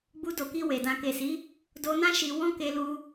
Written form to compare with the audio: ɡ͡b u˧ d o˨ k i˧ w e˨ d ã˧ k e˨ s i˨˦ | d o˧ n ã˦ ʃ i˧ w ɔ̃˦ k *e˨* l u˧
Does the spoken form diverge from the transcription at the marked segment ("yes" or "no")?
yes